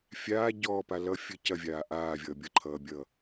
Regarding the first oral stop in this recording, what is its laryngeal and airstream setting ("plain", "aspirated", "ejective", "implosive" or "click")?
plain